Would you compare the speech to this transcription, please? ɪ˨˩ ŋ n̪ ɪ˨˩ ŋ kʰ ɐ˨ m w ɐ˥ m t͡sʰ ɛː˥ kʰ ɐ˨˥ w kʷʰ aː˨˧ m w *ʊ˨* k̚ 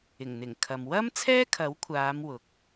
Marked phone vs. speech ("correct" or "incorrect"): correct